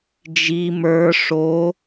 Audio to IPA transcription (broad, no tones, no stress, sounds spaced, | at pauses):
d͡ʒ i m ə˞ ʂ o